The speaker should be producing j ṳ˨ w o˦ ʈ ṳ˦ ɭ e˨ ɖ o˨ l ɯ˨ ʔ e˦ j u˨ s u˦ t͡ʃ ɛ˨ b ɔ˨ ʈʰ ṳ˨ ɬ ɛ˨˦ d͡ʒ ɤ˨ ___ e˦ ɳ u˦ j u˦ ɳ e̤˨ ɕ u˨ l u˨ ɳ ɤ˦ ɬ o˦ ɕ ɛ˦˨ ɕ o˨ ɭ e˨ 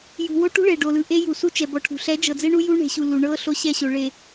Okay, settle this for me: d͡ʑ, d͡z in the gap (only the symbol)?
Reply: d͡z